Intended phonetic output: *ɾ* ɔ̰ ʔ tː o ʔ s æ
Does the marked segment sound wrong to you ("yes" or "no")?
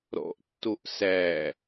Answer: no